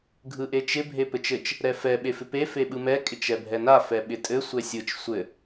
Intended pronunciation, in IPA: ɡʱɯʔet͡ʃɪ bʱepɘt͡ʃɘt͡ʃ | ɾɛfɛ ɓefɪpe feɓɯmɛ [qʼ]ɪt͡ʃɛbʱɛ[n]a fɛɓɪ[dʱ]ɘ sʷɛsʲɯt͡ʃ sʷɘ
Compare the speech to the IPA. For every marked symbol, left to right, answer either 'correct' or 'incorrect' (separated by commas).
incorrect, correct, incorrect